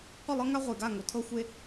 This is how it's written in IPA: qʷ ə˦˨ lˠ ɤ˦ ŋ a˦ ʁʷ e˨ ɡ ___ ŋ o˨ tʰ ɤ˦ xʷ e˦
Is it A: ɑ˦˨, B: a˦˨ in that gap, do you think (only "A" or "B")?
B